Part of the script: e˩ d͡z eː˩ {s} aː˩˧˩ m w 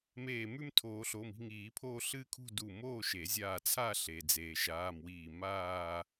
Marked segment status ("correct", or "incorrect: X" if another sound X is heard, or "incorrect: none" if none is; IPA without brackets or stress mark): incorrect: ʃ